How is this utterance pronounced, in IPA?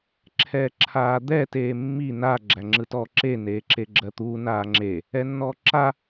ǁʰ ɛː ǁʰ aː d̪ ɛ t eː mː i n a ɡ͡ǁ æ ŋ͡ǁ ɯ t ɔ ǁ e n eː ǁ e ɡ͡ǁ ɜ t̪ uː n aː ŋ͡ǁ e | ɛ nː ɔː ǁ a

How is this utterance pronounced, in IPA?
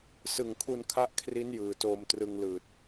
s ɯ˨˩ ŋ kʰ u˧ n kʰ a˦˥ ʔ kʰ r i˦˥ n j ɯː˨˩ t oː˧ m t r ɯ˧ ŋ l ɯː˨˩ t̚

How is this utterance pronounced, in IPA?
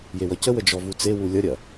j e w ʌ c ə w ə d͡ʒ ɔ v u t͡s e w u lʲ ʌ ɾʲ ɐ

